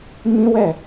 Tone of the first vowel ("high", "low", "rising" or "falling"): high